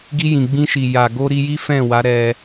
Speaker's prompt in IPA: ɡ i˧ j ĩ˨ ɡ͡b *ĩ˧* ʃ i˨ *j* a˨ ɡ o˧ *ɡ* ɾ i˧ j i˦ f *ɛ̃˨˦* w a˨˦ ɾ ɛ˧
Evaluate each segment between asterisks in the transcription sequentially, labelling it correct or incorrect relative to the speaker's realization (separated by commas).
correct, correct, incorrect, incorrect